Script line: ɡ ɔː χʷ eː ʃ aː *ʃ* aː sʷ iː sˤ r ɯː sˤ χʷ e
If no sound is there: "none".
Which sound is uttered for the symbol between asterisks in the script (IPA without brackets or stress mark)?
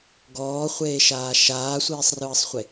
ʃ